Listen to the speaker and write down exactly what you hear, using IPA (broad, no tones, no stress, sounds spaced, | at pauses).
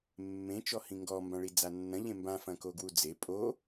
mː ẽ t͡ʃ ɔ h ĩ ŋ ɡ ɔ m b ã ɭ i d͡z a nː ɐ̃ ʎ ẽ m b ã f ɐ̃ k o ɡ w u d͡z e pʼ o